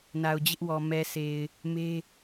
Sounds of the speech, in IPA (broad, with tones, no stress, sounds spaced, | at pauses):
n a˨ ʊ̯ d͡ʑ ɪ˦ ʔ w ɔ˨ m ɛ˨ sʰ e˨ ɪ̯ | m e˦